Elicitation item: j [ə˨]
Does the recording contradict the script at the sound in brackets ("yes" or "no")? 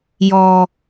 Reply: yes